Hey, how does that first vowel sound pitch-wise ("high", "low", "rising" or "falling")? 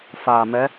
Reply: low